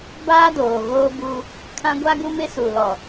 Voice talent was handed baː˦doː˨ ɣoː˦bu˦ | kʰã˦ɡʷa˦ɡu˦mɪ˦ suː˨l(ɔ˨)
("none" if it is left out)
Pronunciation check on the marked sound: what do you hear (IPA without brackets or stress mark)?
ɔ˨